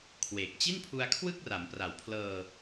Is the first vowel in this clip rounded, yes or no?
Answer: no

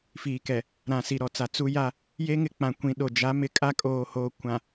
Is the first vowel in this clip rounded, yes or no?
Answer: no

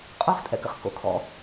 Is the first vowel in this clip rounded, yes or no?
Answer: yes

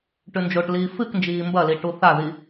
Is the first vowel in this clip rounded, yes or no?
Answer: yes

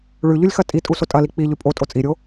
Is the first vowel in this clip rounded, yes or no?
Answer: yes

